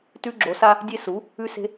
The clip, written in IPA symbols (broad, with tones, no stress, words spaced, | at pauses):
tʉ˦ɡ͡ǁo˩˥sa˦ | dʲe˦su˩˥ | ʉ˦se̤˦